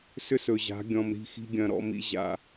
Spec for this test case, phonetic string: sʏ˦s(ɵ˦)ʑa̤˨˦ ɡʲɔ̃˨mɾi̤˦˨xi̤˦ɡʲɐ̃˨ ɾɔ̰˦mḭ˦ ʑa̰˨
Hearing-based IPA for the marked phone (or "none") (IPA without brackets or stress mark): ɵ˨